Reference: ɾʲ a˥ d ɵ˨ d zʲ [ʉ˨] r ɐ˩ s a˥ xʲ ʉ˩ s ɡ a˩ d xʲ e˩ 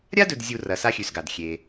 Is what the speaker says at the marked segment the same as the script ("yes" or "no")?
no